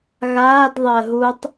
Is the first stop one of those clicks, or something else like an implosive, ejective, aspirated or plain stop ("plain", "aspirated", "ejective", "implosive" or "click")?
plain